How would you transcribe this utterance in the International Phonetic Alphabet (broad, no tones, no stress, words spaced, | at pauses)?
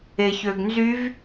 eçøɡnzyv